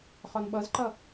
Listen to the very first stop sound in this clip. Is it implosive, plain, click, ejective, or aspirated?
implosive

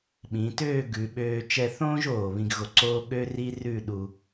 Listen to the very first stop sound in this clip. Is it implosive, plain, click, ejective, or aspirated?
implosive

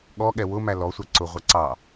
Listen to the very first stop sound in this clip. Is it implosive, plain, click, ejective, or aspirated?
implosive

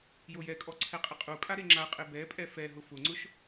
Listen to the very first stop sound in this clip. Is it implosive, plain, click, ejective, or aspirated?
ejective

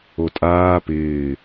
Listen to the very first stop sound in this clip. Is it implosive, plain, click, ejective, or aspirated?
ejective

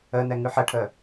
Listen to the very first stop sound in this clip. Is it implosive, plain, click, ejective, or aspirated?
aspirated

